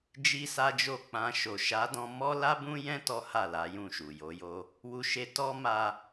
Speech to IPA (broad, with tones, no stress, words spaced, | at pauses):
d͡ʒi˦sa˦d͡ʒo˦˨ k͡pã˧ʃo˨ ʃa˨˦dɔ̃˧ mɔ˦la˦bũ˦jɛ̃˦ tɔ˦ha˦˨la˨˦ jũ˦˨ʃu˨jo˨˦jo˦ | wu˧ʃe˧ tɔ˦ma˧